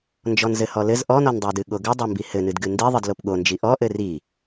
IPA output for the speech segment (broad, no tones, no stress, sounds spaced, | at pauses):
n d͡ʒ ɔ n z ɘ h ɔ l ɘ z ʔ ɔ n ɔ n dˤ o d ɨ ɠ o ɡ ɘ dˤ ɐ m b i h ɘ n ɨ d ɡ ɨ n d i ðˤ ɨ d l o p ɠ o n d͡ʒ i ʔ ɔ ʔ ɘ r i